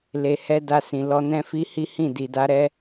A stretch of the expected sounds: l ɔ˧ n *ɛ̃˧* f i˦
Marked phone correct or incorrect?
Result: incorrect